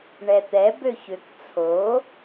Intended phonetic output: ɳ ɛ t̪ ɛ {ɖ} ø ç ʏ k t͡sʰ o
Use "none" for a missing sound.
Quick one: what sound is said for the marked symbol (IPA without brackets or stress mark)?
b